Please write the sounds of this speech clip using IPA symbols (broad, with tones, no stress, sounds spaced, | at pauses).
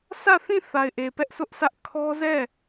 sʰ ä˦˨ θ ĩ˦˨ θ a˨ ɪ̯ ʔ e˨ p ɛ˦ ʔ sʰ ʊ˦ ʔ s ä˦ ʔ kʰ ɔ˦ z ɛ˦˨